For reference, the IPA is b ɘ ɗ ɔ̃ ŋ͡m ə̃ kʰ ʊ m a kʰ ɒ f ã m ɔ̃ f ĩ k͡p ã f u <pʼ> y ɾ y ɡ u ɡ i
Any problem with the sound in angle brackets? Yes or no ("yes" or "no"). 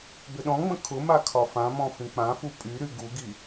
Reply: no